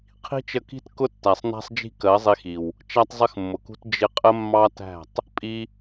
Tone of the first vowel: high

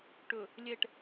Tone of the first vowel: low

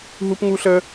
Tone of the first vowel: high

